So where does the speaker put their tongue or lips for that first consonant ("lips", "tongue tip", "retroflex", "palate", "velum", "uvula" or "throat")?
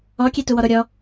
velum